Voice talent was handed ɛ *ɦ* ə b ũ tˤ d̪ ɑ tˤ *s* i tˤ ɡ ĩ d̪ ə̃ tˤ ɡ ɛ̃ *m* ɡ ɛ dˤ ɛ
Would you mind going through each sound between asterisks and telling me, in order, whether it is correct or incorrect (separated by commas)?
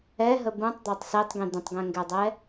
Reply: correct, correct, incorrect